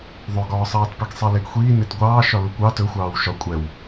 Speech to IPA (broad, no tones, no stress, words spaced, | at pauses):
ðˤɵɡɒːsˤɑːtpiɡ sˤeleɡxʷiːnet ɡʷɑːʃɒ lukʷɑ tɵxʷɑːw ʃɒ kʷʼɛw